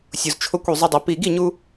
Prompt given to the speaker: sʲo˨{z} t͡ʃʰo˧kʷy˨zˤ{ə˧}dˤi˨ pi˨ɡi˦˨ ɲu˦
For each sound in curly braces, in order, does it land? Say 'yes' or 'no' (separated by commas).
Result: yes, yes